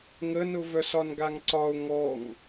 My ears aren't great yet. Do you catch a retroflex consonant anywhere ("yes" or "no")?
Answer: no